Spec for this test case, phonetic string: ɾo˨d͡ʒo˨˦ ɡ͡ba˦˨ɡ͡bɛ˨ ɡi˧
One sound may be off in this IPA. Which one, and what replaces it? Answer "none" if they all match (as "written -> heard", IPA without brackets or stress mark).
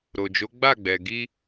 none